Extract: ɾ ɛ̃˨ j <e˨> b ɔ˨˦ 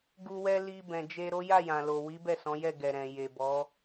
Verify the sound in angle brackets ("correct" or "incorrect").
correct